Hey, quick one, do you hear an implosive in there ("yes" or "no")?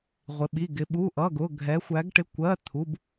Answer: yes